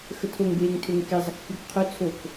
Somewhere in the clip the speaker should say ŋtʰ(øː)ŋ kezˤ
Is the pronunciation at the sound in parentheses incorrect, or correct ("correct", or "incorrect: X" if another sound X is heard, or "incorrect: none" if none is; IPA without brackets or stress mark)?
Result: incorrect: ø